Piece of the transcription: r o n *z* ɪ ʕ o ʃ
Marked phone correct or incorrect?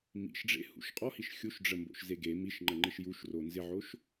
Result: correct